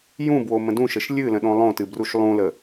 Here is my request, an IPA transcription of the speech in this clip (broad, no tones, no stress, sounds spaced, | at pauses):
j ũ b w o m ə̃ d ũ ʃ ə ʃ lʲ ɨ l ə̃ ɗ õ lˠ õ t ɨ b r u ʃ lˠ ũ l ə